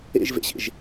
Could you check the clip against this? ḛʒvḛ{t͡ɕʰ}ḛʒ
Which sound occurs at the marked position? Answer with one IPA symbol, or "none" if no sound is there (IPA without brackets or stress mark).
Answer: ɕ